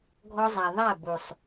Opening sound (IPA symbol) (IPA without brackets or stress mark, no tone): ɡʱ